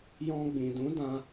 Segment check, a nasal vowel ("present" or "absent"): present